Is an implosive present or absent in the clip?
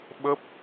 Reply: present